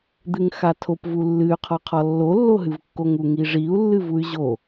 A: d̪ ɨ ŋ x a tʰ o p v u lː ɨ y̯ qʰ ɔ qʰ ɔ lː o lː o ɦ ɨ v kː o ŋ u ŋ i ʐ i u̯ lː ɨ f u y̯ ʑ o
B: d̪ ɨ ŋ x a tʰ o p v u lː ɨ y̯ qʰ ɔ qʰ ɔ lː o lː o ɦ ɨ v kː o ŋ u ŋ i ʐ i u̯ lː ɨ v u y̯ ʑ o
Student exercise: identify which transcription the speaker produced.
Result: B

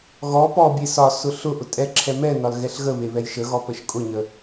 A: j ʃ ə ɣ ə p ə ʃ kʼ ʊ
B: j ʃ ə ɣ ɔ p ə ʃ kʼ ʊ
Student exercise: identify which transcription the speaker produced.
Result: B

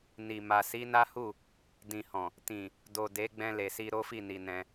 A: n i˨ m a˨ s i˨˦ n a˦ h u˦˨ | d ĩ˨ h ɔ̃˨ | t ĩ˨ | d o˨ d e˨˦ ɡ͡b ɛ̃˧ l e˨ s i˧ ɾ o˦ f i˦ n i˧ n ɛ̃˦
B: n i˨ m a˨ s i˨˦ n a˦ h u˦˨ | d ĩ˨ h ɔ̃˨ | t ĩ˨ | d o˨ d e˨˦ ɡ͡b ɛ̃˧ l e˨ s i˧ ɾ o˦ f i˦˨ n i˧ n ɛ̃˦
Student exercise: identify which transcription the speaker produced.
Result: B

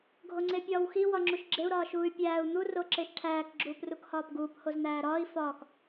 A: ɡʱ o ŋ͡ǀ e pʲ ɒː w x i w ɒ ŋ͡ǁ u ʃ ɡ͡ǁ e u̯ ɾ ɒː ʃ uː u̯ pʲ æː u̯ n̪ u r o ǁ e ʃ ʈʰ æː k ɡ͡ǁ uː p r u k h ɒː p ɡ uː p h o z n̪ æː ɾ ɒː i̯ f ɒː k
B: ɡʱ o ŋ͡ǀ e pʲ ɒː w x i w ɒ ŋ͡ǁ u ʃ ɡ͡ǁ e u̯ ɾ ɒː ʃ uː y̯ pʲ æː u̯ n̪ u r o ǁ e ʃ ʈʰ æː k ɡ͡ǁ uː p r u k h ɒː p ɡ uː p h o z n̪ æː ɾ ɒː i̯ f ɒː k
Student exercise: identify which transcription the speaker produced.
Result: B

